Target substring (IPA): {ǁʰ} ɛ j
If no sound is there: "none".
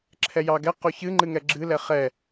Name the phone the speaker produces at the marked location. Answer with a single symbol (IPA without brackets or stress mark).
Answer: ǁʰ